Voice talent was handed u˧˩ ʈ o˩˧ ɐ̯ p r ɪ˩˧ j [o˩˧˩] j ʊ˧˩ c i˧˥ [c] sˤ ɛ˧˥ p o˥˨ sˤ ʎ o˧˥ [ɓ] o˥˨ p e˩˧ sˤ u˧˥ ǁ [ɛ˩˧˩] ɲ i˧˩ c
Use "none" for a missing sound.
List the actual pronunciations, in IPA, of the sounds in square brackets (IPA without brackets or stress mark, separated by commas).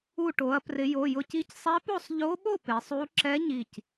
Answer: o˩˧˩, c, ɓ, ɛ˧˥